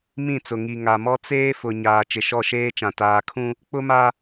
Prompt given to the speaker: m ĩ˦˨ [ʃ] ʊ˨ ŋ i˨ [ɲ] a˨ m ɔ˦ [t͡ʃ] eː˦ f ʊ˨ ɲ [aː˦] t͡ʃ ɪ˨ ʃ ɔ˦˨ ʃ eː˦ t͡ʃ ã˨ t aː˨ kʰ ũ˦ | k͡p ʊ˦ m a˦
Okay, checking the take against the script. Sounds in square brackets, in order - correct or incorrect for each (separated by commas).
incorrect, incorrect, incorrect, incorrect